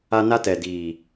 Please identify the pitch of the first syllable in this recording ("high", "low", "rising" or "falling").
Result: high